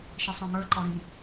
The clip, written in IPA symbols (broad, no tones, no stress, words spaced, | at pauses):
ʃə˞sˤɔ̃ŋə˞ǃɔ ɾĩ